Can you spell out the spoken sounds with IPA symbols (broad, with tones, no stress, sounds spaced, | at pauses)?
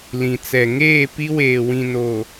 l ĩ˨ t͡s ɛ˨ ŋ eː˦˨ p i˦ w eː˨ w ĩ˨ n o˨